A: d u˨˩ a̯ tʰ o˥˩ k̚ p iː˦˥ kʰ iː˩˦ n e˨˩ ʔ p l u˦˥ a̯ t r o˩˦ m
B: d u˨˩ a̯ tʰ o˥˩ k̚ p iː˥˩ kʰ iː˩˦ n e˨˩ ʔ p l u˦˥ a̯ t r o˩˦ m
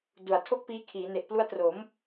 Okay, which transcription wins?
A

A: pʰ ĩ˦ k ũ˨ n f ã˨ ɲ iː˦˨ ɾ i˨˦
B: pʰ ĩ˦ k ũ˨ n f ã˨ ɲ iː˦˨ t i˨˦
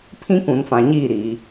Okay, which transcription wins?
A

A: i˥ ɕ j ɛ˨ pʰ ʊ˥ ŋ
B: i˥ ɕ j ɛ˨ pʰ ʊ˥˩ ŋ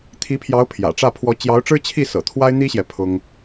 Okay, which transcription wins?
A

